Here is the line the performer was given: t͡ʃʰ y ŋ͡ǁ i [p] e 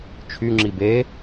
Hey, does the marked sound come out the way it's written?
no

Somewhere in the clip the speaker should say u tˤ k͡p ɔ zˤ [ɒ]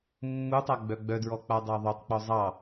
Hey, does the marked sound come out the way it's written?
no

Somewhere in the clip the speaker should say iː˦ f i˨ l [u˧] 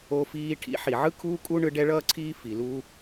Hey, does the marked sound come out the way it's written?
yes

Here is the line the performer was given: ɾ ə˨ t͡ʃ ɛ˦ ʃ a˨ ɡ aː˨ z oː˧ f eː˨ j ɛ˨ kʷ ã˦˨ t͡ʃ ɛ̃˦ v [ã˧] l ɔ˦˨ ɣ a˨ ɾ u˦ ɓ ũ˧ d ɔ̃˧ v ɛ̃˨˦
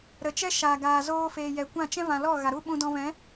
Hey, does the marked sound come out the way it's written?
no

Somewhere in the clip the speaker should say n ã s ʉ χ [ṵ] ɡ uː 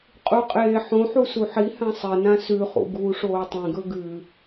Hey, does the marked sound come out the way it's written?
yes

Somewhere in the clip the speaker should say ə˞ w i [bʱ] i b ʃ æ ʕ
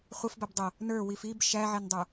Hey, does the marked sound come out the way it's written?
no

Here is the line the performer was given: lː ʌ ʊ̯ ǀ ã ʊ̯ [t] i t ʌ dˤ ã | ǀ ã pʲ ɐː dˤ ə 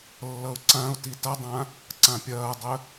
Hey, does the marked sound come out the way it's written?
yes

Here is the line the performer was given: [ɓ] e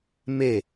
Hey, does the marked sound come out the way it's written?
no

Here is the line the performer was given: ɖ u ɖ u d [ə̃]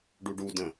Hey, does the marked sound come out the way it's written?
yes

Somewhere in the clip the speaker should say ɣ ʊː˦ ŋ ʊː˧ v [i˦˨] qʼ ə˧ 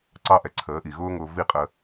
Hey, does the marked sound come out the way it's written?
yes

